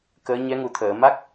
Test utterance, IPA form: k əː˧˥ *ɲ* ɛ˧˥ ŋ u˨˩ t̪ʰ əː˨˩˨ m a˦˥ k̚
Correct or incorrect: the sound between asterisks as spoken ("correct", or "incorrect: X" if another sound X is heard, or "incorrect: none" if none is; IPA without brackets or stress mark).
correct